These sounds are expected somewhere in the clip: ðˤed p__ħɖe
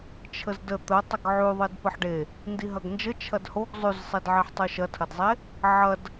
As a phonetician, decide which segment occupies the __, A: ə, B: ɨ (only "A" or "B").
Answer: A